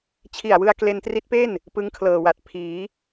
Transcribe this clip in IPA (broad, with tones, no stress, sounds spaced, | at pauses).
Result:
t͡ɕʰ i˨˩ a̯ w ɯ˧ a̯ k l e˧ n t r i˦˥ t̚ p e˥˩ n | p ɯ˦˥ ŋ kʰ l ɤː˨˩ w a˨˩ t̚ pʰ iː˩˦